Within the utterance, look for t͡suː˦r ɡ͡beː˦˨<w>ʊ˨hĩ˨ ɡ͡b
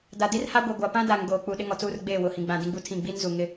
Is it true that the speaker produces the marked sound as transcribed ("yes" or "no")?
yes